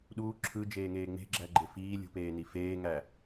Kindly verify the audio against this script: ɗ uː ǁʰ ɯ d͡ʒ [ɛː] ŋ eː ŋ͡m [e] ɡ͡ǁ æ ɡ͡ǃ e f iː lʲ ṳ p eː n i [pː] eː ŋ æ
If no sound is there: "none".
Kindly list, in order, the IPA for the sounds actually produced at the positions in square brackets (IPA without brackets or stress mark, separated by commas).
eː, e̤, f